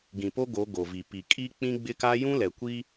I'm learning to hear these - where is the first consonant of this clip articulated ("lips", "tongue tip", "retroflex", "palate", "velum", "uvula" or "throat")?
velum